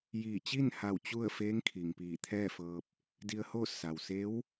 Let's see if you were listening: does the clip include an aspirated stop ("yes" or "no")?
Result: yes